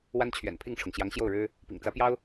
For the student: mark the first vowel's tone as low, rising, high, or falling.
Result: high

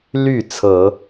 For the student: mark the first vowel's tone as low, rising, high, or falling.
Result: falling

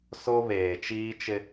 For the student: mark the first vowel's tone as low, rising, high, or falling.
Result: high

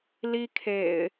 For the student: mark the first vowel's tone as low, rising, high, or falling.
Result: high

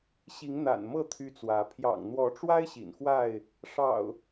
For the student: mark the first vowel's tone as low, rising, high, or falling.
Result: rising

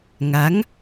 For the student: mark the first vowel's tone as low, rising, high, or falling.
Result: rising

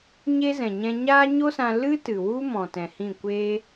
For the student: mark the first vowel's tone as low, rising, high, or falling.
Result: high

